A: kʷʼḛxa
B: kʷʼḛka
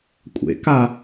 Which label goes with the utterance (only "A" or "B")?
B